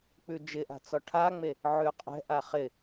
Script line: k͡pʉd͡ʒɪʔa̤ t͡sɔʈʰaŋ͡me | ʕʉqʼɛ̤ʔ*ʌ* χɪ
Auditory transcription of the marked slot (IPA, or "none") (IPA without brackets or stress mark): a